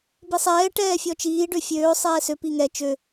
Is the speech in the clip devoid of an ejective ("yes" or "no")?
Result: yes